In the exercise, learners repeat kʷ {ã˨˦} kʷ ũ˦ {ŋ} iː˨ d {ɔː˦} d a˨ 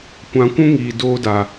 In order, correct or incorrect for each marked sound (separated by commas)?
correct, correct, incorrect